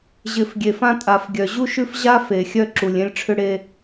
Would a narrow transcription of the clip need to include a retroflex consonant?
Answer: yes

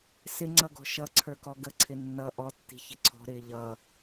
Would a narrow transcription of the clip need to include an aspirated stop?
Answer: yes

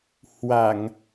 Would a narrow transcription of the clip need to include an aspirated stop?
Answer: no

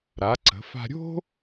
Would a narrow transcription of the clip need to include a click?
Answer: yes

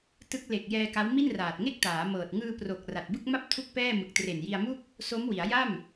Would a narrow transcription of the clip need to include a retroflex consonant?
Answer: no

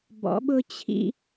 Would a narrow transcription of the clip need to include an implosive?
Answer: yes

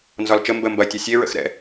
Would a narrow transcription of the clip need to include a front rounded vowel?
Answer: no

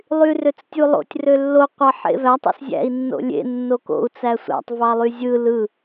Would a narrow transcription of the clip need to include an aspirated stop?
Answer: no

